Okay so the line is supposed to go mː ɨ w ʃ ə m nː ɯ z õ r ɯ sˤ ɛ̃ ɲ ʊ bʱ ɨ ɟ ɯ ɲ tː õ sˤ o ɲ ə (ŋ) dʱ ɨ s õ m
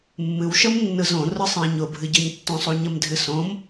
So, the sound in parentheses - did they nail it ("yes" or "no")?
no